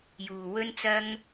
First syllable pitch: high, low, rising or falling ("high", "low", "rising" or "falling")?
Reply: low